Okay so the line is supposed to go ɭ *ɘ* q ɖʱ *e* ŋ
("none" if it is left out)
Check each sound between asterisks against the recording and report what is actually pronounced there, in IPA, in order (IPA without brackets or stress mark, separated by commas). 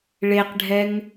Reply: e, ɛ